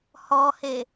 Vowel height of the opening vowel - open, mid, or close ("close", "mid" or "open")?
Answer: mid